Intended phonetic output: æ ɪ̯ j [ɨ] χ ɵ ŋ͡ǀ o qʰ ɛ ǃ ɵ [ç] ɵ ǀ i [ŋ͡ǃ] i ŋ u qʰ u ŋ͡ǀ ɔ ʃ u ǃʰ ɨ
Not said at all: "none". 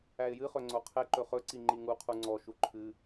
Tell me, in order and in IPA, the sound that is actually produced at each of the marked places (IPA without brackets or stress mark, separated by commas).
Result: ɨ, χ, ŋ͡ǃ